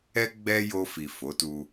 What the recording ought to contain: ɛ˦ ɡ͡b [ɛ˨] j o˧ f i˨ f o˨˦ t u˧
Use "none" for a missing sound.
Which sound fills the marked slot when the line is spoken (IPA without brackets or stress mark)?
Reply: ɛ˦